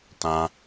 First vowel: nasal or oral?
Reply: nasal